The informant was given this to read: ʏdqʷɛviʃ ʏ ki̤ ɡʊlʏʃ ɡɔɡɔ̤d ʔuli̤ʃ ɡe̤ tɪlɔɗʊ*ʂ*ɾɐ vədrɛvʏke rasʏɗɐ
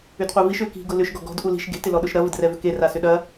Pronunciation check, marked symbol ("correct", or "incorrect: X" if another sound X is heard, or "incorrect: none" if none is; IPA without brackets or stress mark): incorrect: ʃ